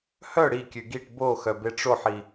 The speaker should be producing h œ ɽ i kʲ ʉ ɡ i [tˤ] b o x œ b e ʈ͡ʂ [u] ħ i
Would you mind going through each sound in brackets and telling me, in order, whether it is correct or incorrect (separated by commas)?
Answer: incorrect, incorrect